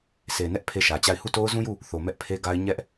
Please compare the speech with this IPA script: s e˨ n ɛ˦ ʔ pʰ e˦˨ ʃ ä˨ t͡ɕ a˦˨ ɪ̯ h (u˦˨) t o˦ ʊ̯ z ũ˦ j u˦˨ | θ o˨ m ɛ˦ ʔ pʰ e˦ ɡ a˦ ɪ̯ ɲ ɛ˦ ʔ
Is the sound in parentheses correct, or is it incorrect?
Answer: correct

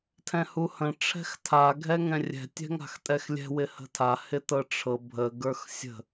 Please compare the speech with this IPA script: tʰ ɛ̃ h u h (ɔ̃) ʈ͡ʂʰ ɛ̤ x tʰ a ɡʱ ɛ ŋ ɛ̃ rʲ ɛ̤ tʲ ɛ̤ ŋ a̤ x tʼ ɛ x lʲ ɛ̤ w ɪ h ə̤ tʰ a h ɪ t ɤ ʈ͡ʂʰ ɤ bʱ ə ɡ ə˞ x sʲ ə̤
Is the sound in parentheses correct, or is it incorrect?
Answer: incorrect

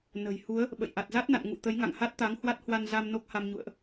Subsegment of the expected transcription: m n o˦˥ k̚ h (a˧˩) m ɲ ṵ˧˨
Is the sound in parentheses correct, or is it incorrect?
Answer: incorrect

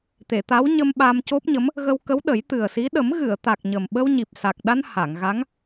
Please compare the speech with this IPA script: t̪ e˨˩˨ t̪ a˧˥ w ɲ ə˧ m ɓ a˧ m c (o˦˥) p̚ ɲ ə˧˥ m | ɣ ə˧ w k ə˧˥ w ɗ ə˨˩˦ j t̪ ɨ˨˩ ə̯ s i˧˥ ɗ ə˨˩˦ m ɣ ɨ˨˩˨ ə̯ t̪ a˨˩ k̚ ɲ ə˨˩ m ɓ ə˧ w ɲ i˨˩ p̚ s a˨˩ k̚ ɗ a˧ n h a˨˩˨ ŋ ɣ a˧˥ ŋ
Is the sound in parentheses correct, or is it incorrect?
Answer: correct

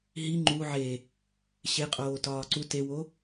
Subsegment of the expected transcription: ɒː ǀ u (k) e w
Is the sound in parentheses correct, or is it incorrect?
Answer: incorrect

